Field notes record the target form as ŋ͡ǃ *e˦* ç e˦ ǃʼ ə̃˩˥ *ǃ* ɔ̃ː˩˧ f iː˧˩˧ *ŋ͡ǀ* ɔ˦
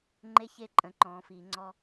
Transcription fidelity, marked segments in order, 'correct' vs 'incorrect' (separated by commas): correct, correct, correct